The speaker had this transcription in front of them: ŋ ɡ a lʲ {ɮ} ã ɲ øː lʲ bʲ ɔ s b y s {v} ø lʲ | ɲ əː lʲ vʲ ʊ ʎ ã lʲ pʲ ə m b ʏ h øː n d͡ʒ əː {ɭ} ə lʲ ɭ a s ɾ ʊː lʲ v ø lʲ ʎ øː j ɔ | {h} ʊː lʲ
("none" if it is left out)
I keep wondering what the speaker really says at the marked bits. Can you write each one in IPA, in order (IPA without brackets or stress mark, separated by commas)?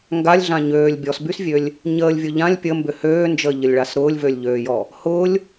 ɮ, vʲ, ʎ, h